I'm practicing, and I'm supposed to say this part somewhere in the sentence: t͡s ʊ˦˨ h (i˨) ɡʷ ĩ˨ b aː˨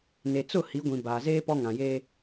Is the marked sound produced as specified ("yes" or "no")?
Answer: no